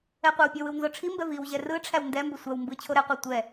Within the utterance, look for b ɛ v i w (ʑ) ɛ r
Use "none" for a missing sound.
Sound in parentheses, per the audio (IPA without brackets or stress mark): ʑ